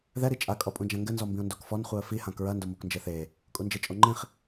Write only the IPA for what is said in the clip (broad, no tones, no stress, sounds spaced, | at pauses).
ð ɛ ɾ i t͡ʃʼ a kʼ ɔ pʼ ũ d͡ʒ ã ŋ ɡ ɘ n z ɔ m b ĩ ʊ̯ n d o k f ɔ n χʷ ɨ ə̯ f i h ã k ɹ ɐ n d o m o k n d͡ʒ e θ e | kʼ u n d͡ʒ e t͡ʃʼ o ŋ͡ǃ ĩ χ